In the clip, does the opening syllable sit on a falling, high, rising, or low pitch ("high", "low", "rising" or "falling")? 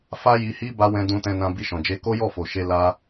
high